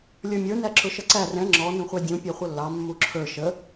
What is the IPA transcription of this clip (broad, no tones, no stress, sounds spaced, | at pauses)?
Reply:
lʲ ə˞ mʲ ə˞ n æ ǁ ʊ ʃ ʌ ǀ æ r ɛ̃ ŋ͡ǁ ɔ n ũ χʷ ɑ dʲ ũ pʲ ɛ χʷ ʌ lː ɑ mː u ǁʰ ə˞ ʃ ə